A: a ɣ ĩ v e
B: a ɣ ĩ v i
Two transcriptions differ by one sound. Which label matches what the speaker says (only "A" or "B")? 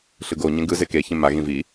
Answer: B